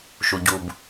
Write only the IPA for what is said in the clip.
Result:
ʃu˨ɟu˨b

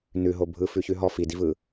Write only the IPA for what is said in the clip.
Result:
nʉɦo bʱɯfʉçʉɦɔ fidivɯ

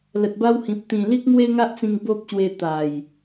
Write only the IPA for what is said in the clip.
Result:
lə˨t̚ba˦whĩ˨p̚ t̪ĩ˨˩ li˦k̚ŋwe˦ŋa˦ʔt͡sĩ˧ŋ bo˦p̚ɕwe˧ t̪a˨˩j

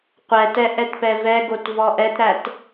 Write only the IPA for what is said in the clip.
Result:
qʷɛtɛ ʔɛtpɛvɛɡot vɔʔɛtɾæt

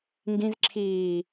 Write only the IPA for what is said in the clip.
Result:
ŋɡĩzǁʰiː

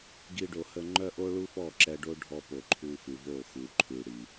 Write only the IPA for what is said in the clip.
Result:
ɡi˧ɖo˨hə˧ ŋ͡ǃœ˦ʔo˦ɭu˦fɔ˦˨ ǁɛ˧ɖo˦ ɖʱɔ˧ po˨ǃʰu˧fʉ˨vo˦˨ xu˨ǃʰʉ˨ɽi˨

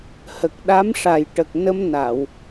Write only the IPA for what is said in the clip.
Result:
hə˨˩k̚ɗa˧˥mʂa˨˩j ʈə˨˩k̚nə˧mna˨˩˨w

